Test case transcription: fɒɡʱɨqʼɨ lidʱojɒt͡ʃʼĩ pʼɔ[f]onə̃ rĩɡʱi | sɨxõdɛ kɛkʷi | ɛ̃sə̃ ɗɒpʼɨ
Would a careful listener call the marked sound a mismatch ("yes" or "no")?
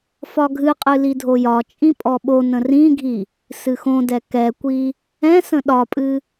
yes